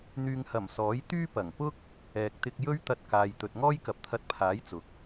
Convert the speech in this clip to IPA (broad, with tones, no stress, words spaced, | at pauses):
n̪yː˨ŋhɐ˨˩m sɔː˨˥jt̪yː˥pɐ˨˩ŋ pʊ˥k̚ | ɛː˨k̚t̪ɪ˧k̚ jɵ˥ɥt̪ɐ˧t̚kaː˨jt̪ɵ˨t̚ ŋɔː˥jkɐ˨p̚t̪ʰɐ˧t̚pʰaː˨˥j t͡sʊ˨k̚